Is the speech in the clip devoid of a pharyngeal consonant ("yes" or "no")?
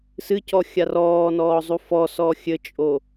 yes